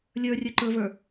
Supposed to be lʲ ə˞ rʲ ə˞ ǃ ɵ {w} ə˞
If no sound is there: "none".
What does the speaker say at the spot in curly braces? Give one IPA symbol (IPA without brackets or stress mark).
v